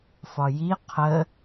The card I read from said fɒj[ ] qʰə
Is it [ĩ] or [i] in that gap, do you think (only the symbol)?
i